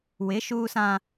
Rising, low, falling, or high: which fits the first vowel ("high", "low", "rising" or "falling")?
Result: rising